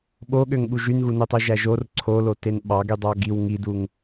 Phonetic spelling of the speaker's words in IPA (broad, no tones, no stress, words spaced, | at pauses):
ɓoɠøŋɠu ʒynɣunøtˤy ʒæʒor ǀʰolo tenɓɑ ɡydˤɑɡiw ŋiduŋ